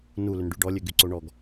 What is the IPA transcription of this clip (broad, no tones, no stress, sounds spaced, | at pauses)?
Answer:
n u l ʏ n ɖ y ɖ ɔ lʲ ø ɡ y ǀ o ɳ ɔ ɡ